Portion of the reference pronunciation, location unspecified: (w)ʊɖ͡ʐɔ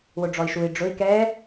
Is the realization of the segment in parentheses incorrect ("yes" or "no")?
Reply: no